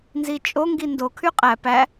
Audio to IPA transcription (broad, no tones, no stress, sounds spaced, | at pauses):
n z i t͡ʃʼ o ŋ ɡ i n d o kʰ y qʼ æ p æ